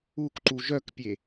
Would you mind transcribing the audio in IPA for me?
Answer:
ukǃu ʒœkpʲe

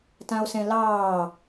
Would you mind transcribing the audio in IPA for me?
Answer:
tão̯sɛ̃lɑː

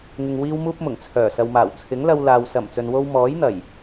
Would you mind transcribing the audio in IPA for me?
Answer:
ŋɪ˨ŋ wiː˥wmuː˥p̚mʊ˨˩ŋt͡sʰœː˨˩ sɐ˨wmaː˨˩w t͡sʰɪ˨˥ŋlɐ˧wlaː˨w sɐ˨˩mt͡sɵ˨nwo˧w mɔː˨˥j n̪ɐ˨˩j

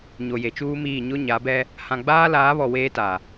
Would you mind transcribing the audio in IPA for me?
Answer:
ɲo˨je˨t͡ʃuː˦miː˦˨ ɲʊ˦ɲa˨˦bɛ˦ | hã˨ɡ͡baː˦laː˨˦βɔ˨ weː˦ta˨

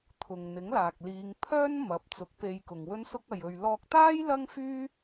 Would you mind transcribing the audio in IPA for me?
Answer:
t̪ʰʊ˨ŋn̪ɪ˨˥ŋlaː˨k̚liː˨˧ŋ pʰœː˥n mɐ˨˥p̚t͡sʊ˨˥k̚pe˧j kʊ˨ŋwɵ˥nsʊ˥k̚ ɐ˨jɵ˨ɥlɔː˧k̚t̪aː˥j lɐ˥ŋfyː˥

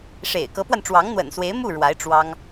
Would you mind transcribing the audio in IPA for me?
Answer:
ʂḛ˨˩ɪ̯kɤ˧˥pwa˧nʈ͡ʂwɑ˧˥ŋ n̪wə̰˨˩nswe˧˥ɪ̯mu˥˩ ɻwa˧˥ɪ̯ ʈ͡ʂwɑ˥ŋ

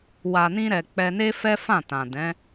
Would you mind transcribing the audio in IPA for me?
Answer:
wa˨nĩ˧ɾɛ˨ k͡pɛ˧ne˦fɛ˦ fã˦˨tã˨ dɛ̃˨˦

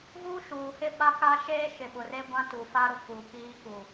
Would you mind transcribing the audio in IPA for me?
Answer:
ɣuː˦ʃuː˨hɪ˦ ɓa˦ka˦ ʃeː˦ʃɪ˨ ɓʊ˨re˦ɡʷã˦ tu˨ fa˦ɾʊ˨ ku˨kiː˦ kuː˨

